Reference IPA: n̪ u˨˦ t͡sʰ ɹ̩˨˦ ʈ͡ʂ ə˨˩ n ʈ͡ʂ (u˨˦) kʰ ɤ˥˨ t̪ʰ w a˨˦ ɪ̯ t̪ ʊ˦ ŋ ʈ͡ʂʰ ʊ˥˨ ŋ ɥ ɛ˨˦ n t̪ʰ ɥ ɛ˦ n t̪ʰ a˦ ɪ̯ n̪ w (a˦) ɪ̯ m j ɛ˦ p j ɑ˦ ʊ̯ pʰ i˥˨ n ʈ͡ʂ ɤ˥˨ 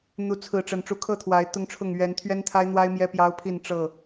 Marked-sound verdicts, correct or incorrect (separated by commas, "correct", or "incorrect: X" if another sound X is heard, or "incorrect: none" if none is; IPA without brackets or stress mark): correct, correct